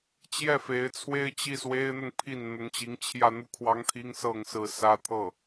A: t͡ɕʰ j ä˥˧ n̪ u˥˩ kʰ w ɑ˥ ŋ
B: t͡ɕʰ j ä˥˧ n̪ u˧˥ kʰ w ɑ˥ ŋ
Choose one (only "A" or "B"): A